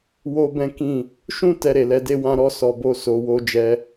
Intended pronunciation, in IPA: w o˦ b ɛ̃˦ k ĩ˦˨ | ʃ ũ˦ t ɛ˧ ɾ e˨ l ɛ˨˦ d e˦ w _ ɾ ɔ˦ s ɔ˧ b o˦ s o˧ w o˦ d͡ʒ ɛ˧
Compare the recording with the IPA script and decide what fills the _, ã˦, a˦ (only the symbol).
ã˦